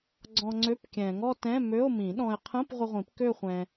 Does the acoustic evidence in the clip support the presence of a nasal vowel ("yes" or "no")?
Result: yes